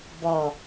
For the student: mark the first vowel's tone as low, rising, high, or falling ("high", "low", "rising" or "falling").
low